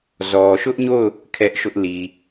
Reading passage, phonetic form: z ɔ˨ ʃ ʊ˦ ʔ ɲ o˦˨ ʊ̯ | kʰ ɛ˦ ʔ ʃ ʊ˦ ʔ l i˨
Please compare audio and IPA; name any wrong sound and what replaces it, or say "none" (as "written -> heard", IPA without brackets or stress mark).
none